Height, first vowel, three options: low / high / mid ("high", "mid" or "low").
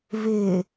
high